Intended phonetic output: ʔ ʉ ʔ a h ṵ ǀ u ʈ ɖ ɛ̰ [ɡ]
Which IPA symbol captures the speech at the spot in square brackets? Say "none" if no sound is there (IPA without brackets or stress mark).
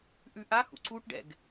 ɡ